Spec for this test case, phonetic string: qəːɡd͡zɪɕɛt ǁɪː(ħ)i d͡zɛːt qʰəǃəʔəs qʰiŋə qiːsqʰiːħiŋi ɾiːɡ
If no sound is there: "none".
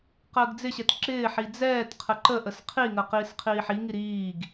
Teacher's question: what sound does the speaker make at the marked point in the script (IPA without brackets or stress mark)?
ħ